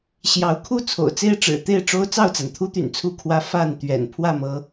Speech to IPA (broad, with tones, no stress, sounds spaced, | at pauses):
ɕ j ɑ˨˦ ʊ̯ kʰ u˥˨ t͡sʰ o̰˨˩ ʊ̯ t͡s e˥˨ ɪ̯ ʈ͡ʂ ɻ̩˨˩ t̪ e˥˨ ɪ̯ ʈ͡ʂ o˦ ʊ̯ t͡s ɑ˥˨ ʊ̯ t͡s a˩ n t̪ʰ u˦ t̪ y̰˨˩ n t͡sʰ u˥˨ kʰ w ä˦ f a˥˨ n t̪ ɥ ɛ̰˨˩ n pʰ w ä˥˨ m ɤ˨˦